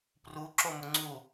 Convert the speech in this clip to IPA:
p r u ǁ o m ʊ ŋ͡ǀ u

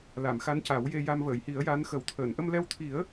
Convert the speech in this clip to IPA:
l a˨˩˨ m x a˧˥ n c a˨˩˦ w j e˧ j a˧ m v əː˨˩˨ j h i˨˩˦ ə̯ j a˧˥ n x ə˨˩˦ w t̪ʰ əː˨˩˨ n ʔ ə˧ m l ɛ˧ w t̪ʰ i˨˩˦ ə̯

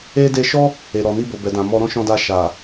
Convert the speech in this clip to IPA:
e˧ d e˧ ʃ ɔ˦ | e˨ ɾ ɔ˨ n i˧ b o˨ b ɛ˨ d ã˨ m ɔ˧ ɾ ɔ̃˦ ʃ ɔ̃˧ d a˧ ʃ a˨

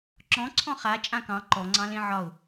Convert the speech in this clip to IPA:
ǁ ɔ̃ ǀʰ ɔ̃ χ a t͡ʃʼ ã k ɑ̃ ǃ ɔ ŋ͡ǀ ɑ̃ l ẽ ʕ ɒ ʊ̯

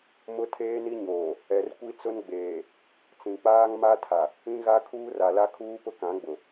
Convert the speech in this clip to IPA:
m ʊ˦ tʰ eː˦ n i˦ ɲ oː˨ | ɛ˨ r kʷ i˦ t͡s ʊ˦ n ɡ͡b eː˨ | t͡s ĩ˨ k͡p aː˦ ŋ m a˦ tʰ a˨ | ĩ˦ ɣ a˦ kʰ uː˦ r a˨ l a˦ kʰ uː˦ p ʊ˦ k ã˨˦ ɡ͡b ʊ˨

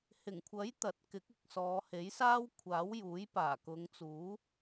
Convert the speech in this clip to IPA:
h ɪ˨˩ ŋ kʷʰ ɐ˨˥ j t̪ ɐ˨˥ t̚ k ɪ˨˥ k̚ ɪ˨ k̚ s ɔː˨˧ h e˨˥ j s aː˥ w kʷʰ aː˨˥ w j uː˨˥ j p aː˨˩ k ʊ˨˧ ŋ t͡s uː˨˥

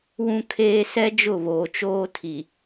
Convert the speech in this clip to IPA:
w ũ˦ kʰ eː˦ s ɛ˦ d͡ʒ ʊ˦˨ β oː˨ t͡ʃ oː˦ tʰ i˨

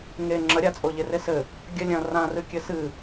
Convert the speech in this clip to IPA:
ŋ e ŋ͡ǁ ɐ ɾʲ a t͡sʼ o ʎ e r e s ɘ | ɡʲ ɐ lʲ ɐ̃ r ã r ɨ kʲ ɘ s ɨ

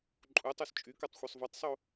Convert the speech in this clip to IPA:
ǃʼ u tˤ o s t͡ʃʼ y k ɔ tˤ xʷ œ sˤ v o tˤ sˤ o

